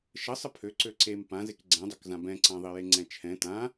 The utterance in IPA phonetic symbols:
ʃ ə sˤ ə pʰ ø ǀ ø ǀ e m p ã z e k ɡ͡ǀ ɛ̃ dˤ ø k z ã b ɛ̃ ǀ ã ðˤ i j e ŋ͡ǀ ɛ̃ t͡ʃʰ ɛ̃ t ã

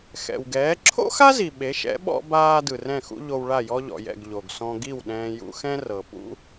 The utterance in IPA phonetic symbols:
x ɛ̰˩ w ɡ ɛː˩˥ ǁʰ o̰˥ x a˥ z i˩ ɓ e˩˥ ʃ ɛ̰˩˥ ɓ ɔ̰˧ b aː˧ d ɯ˩ r ɛ̃˥˩ x ṵ˥ ʎ o˧ w ɭ a˥˩ j ɔ˥ ʎ ɔ̰˩ j ɛ̰˥˩ ɡ ʎ o˩ ɡ s ɔ̃˧ ɡ i˥˩ w ɗ ɛ̃ː˧ j ṵ˧ x ɛ̃˥ r ɤ˩ p ṵ˥

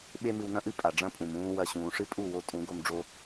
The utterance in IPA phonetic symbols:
ɓ e˦ m ɨ˧ w n ɐ̃˦ ʔ ɨ˦ pʼ a˨ ɖ͡ʐ ɐ̃˦ pʼ ũ˨ m ũː˦ w ɐ˦˨ ɕ ũː˨ ʂ ɨ˦ pʼ u˦˨ w o˧ tʼ ũ˨˦ ɡ o˧ m ɖ͡ʐ o˧

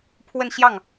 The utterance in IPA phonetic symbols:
pʰ w ə˥˧ n ɕ j ɑ˥˩ ŋ

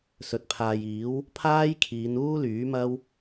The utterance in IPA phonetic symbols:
s ɵ˨ t̚ pʰ aː˨ j iː˨˥ w | pʰ aː˥ j kʰ iː˨˧ n uː˥ l yː˨˥ m ɐ˥ w

